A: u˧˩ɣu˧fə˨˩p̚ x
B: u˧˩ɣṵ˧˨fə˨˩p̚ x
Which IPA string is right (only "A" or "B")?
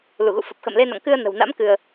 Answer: B